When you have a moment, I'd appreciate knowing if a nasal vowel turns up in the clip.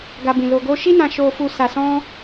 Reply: yes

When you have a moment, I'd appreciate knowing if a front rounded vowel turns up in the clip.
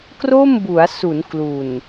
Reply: no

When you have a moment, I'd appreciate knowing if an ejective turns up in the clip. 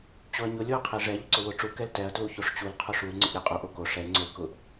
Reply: yes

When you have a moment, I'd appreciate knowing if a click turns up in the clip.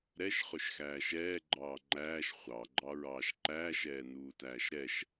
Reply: yes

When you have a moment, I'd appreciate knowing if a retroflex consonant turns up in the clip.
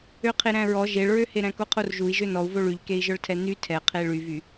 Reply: yes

